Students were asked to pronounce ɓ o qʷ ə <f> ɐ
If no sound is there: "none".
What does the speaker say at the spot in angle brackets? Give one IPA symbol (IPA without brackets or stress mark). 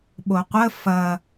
f